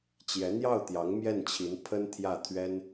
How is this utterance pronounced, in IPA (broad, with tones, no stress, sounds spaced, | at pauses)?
t͡ɕ j ɛ˧˥ n̪ j ɑ˥˩ ʊ̯ t̪ j ɑ˧˥ ŋ m j ɛ˥˩ n t͡ɕʰ i˧˥ n pʰ ə˥ n t̪ʰ j ä˥˩ t̪ʰ ɥ ɛ˥ n